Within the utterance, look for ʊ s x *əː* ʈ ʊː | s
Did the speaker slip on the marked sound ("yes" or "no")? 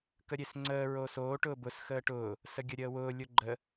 no